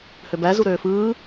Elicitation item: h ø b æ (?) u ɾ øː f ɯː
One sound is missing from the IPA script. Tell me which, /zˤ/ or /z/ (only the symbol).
z